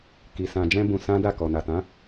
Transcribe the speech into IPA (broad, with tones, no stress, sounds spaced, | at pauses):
k i˧ s ã˧ d͡ʒ ɛ̃˦ b ũ˧ s ã˦ d a˦˨ k ɔ˨ n a˨ t ã˨˦